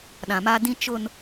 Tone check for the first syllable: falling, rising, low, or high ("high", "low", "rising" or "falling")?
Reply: low